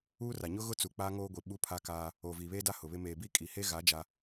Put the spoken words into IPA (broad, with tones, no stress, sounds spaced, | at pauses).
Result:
uː˦ r a˨ ɲ ʊ˦ ɣ ʊ˦ t͡s u˨ k͡p a˦ ŋ oː˦ ɡʷ i˨ ɓ u˦ pʰ a˦ k aː˦ | oː˨ v iː˨ β eː˦ d a˦ h ʊ˨ β ɪ˦ m eː˨ b i˦ kʼ i˨ h e˦ ɣ a˨˦ d͡ʒ a˦